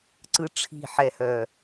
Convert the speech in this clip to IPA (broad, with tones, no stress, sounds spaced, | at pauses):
ǀ ɯ˦ ʈ͡ʂʰ i̤˦˨ ħ ɛ˨ h œ˨